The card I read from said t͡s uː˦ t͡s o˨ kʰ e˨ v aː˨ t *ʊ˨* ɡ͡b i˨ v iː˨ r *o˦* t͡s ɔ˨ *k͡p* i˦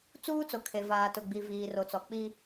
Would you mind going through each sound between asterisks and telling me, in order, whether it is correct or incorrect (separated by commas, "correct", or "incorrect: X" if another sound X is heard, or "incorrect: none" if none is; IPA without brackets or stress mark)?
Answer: correct, incorrect: o˨, correct